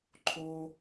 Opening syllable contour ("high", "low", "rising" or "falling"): high